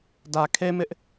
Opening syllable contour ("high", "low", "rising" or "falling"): low